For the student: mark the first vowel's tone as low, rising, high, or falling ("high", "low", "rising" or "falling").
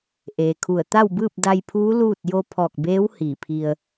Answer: low